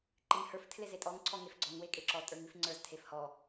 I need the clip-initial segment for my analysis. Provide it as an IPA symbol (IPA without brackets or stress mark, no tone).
ǃ